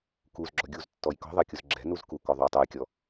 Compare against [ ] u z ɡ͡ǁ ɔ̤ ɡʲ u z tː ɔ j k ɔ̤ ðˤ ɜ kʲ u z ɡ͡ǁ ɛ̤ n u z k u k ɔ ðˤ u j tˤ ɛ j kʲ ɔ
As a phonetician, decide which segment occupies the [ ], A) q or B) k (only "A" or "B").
B